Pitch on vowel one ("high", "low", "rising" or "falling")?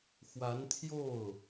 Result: rising